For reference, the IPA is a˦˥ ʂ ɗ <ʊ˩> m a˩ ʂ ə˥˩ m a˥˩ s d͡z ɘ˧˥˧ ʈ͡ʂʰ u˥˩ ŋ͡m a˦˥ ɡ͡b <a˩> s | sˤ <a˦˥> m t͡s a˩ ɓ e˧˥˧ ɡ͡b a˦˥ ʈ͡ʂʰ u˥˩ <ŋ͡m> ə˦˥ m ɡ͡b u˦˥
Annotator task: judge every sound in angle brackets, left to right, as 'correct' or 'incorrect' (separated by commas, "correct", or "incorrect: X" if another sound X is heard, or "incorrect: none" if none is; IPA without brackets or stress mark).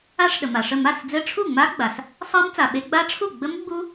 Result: incorrect: ə˩, correct, correct, incorrect: ɡ͡b